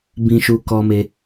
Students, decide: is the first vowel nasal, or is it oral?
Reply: nasal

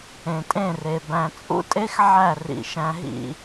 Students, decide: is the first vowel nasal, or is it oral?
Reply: nasal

